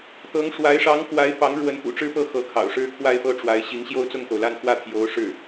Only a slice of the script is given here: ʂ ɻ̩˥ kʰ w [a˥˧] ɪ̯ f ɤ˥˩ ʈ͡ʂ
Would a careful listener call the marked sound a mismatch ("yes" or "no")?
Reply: no